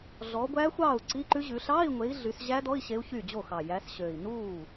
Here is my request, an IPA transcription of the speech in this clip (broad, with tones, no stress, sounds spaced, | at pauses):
ɮ ɔ˨˦ ɡʷ æ˦˥ xʷ ɑː˥˩ u̯ ǀ i˧˥˧ ǃ ʉ˦˥ ʑ ʉ˨˦ ɬ ɑː˧˥˧ i̯ ŋʷ e˨˦ i̯ ɮ y˨˦ s ʑ æ˦˥ d ɔ˧˥˧ i̯ ɕ e˦˥ u̯ ç yː˥˩ d͡ʑ o˥˩ x ɑ˨˩ j æ˨˦ s ɕ ø˨˩ i̯ n uː˥˩